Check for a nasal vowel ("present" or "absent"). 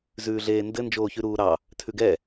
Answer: absent